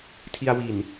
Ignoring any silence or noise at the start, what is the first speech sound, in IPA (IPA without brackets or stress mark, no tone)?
tʰ